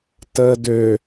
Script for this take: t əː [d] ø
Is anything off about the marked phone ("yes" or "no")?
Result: no